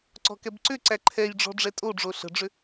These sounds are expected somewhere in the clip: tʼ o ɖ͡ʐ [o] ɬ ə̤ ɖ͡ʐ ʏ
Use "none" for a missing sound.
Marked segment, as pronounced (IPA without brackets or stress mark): o